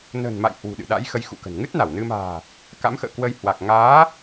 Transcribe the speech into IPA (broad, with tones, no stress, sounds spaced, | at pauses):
n ə̤˨˩ n m a̰˧˨ j h w ṳ˨˩ ɗ ɨ̰˧˨ ɗ a̰˧˥ j x ə˨˦ j x ṵ˧˨ k ə̤˨˩ n ŋ ɨ˦˥ t̚ n a˧˩ w n ɨ˧ m a̤ː˨˩ | k a̰˧˥ m x ə̰ː˧˨ k w ə˧ j h w a˨˩ k̚ ŋ aː˨˦